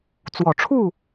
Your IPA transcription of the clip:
t͡s w ɔ˨˩ ʈ͡ʂʰ u˥˨

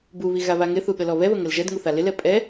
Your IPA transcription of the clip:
b u β i ɣ a β a ŋ ɪ θ u ɠ ə l ɔ β ɛ β ə ŋ ə l ʒ ɛ d ŋ u θ a l ɪ l ɛ pʼ ɛ

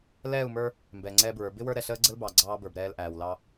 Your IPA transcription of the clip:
l ɛː˦˨ u̯ m ə˞˦ | m b ɛː˨ ŋ͡ǀ ɛː˦ b ɹ ə˞˨˦ b ɪ˦ w ə˞˦ ɾ ɛ˨ ɬ əː˦ ɡ͡ǀ ə˦ l b ɑ˨ ɡ͡ǀ ɑː˦ b ə˞˨ b ɾ ɛː˦ l ʔ æː˨ w l ɑ˦

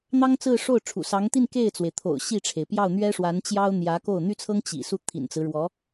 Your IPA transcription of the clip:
n̪ ɑ˥ ŋ t͡s ɹ̩˥˧ ʂ o˥˩ ʊ̯ ʈ͡ʂʰ ṵ˨˩ s ɑ˧˥ ŋ t̪ i˥˧ n k e˥˩ ɪ̯ t͡s w e˩ ɪ̯ t̪ʰ o̰˨˩ ʊ̯ ɕ i˥˩ ʈ͡ʂʰ e˩ ɪ̯ p j ɑ˥˩ ʊ̯ n̪ ɥ ɛ˥ ʂ w a˧˥ n t͡ɕ j ɑ˥ ʊ̯ n̪ j ä˧˥ k o˥˩ ʊ̯ n̪ y˥ t͡sʰ ɤ˥ ŋ t͡ɕ ḭ˨˩ s u˥˩ t̪ʰ ḭ˨˩ n t͡s ɹ̩˦ ɻ w ɔ˧˥

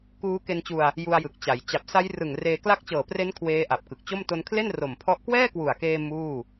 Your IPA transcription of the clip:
k uː˦˥ k e˧ n t͡ɕ u˧ a̯ | j u˧ a̯ j ɯ˨˩ k̚ t͡ɕ a˩˦ j t͡ɕ a˨˩ p̚ s a˦˥ j r ɯ˨˩ ŋ r eː˧ k l a˦˥ k̚ t͡ɕ ɤː˨˩ p r e˦˥ n kʰ w eː˦˥ ʔ a˨˩ p̚ k ɯ˨˩ k̚ t͡ɕ o˥˩ m t o˧ n kʰ l e˥˩ n r o˨˩ m pʰ ɔ˦˥ ʔ k w ɛː˥˩ k w u˨˩ a̯ k eː˧ m uː˥˩

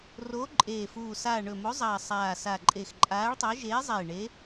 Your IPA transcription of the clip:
r oː˨˦ ǃʼ eː˨˩ f uː˨˩ s aː˨˩ ɳ ɵ˨˩ m o˨˦ zˤ ɐː˨˩ sˤ aː˨˩ s a˨˩ ǃʼ e˨˩ x ǃʼ aː˨˦ ɭ tˤ ɐ˨˦ ʒ eː˨˦ zˤ e˨˩ ɳ e˨˦

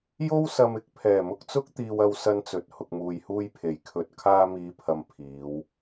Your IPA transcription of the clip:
j o˥ w s ɐ˧ m ɪ˧ k̚ pʰ ɛː˨˩ m ʊ˧ k̚ t͡s ʊ˥ k̚ t̪ iː˧ w ɐ˧ w s ɐ˧ n t͡s ɵ˨ t̚ h ʊ˨ k̚ m uː˨ j h uː˧ j pʰ e˨˩ j kʰ ɵ˨ t̚ kʰ aː˧ m iː˨˧ pʰ ɐ˨ m pʰ iː˨˧ w

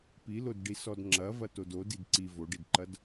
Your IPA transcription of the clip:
p i l o d ɖ i s ɔ d ŋ͡ǁ ɐ v ɐ t o d o d i d ǀ i v o ɖ i d ǃ ɐ d

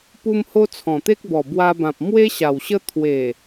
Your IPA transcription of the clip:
p u˧ m h o˧ t͡sʰ ɔ̃˨˩ t̪ e˦ k̚ b ɔ˨˩ b w a˧ b ã˨ p̚ m w e˦ ɕ a˨˩ w ɕ ə˦ t̪ʰ w e˨˩

